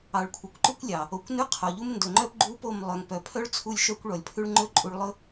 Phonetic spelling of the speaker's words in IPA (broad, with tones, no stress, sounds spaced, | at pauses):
ɑ˨ ɭ kʷʰ ɑ˨ kʷ ǃ ʉ˦ kʷ lʲ ɑ˨ | o˨ kʷ n ʉ˦ qʰ o˨ ʎ u˦ m n d ɵ˨ ŋ͡ǃ œ˦ p ɡ͡ǃ u˦ p o˦˨ m lˠ œ˨ ŋ p œ˨ pʰ œ˦ ɭ t͡sʰ u˦˨ lʲ ʃ œ˦ kʷ ɭ ɔ˨ lʲ pʰ ʉ˦ ɭ ŋ͡ǃ ɵ˦ ǃʼ u˦ ɭ lˠ ɵ˦